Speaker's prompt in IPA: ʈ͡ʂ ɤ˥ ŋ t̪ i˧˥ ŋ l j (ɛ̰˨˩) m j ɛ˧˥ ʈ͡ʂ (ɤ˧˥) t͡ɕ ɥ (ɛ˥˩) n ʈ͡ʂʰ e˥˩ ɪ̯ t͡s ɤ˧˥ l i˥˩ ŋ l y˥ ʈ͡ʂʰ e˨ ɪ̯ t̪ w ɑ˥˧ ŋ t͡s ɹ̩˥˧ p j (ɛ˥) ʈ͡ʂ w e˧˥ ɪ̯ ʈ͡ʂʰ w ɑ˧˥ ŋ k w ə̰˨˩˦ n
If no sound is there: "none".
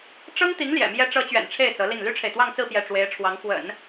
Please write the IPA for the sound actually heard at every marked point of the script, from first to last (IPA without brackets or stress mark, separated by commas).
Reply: ɛ̰˨˩, ɤ˧˥, ɛ̰˨˩, ɛ˥˩